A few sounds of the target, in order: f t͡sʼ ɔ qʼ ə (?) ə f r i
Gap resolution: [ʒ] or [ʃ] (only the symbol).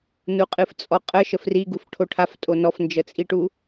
ʃ